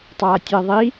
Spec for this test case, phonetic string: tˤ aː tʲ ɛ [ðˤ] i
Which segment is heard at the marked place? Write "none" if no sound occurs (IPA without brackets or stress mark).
ðˤ